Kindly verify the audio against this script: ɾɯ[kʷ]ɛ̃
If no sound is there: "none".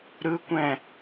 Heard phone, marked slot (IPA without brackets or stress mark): kʷ